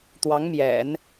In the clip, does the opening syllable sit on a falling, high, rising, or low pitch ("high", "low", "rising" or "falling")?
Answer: rising